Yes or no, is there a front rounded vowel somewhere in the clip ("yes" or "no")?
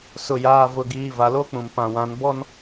no